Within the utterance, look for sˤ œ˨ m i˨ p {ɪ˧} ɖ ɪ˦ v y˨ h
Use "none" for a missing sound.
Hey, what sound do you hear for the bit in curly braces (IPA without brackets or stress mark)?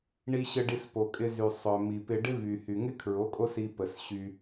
ɪ˧